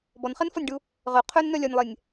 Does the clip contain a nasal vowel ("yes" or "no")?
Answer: no